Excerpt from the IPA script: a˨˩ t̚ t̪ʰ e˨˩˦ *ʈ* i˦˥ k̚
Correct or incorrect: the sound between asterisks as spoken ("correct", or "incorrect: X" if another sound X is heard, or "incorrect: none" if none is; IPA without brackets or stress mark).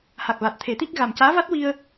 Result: incorrect: t̪